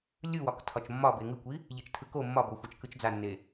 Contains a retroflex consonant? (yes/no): no